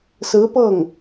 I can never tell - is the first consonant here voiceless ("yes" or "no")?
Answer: yes